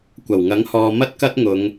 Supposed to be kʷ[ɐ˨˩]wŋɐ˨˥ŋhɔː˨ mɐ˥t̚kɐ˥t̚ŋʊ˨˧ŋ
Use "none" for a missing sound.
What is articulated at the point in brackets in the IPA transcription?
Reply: ɐ˨˩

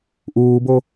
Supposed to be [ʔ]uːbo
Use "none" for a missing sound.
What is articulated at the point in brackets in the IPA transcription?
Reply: ʔ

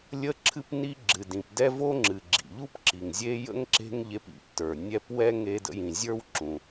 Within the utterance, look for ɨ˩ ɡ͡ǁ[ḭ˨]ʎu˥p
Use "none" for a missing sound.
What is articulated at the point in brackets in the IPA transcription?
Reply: ḭ˩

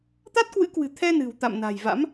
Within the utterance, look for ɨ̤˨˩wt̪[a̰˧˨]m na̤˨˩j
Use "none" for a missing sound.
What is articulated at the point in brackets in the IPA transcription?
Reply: a̰˧˨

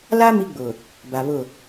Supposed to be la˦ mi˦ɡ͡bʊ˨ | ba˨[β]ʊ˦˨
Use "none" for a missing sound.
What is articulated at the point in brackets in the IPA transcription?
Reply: β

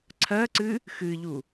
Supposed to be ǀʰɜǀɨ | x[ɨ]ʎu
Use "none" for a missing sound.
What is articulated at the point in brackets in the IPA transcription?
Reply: ɨ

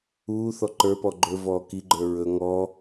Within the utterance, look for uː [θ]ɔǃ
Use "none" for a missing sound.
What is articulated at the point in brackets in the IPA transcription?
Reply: θ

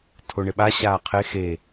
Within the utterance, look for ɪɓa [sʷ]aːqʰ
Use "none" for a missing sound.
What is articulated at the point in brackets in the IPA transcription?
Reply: ɕ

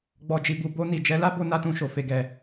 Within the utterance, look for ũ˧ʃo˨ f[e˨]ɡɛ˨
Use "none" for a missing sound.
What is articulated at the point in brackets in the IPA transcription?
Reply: e˨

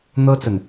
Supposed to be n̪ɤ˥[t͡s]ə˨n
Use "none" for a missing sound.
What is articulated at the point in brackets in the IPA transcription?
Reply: t͡s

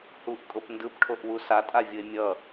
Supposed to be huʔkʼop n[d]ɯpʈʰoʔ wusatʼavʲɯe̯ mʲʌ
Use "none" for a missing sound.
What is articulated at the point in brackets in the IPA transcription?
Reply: d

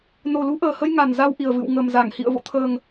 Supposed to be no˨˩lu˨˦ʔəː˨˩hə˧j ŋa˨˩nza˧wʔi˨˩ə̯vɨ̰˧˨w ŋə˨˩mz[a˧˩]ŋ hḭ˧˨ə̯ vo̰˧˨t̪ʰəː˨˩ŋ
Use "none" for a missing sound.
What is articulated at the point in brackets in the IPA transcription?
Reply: a˧˩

